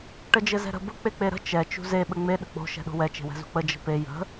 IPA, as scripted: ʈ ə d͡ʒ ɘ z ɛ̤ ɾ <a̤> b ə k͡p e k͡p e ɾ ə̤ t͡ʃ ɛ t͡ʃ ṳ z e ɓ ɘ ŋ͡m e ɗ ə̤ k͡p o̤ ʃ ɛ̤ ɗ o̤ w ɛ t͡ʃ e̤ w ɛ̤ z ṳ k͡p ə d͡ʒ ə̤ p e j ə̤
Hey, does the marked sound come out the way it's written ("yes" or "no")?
no